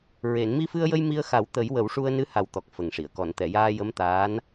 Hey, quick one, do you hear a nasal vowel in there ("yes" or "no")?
no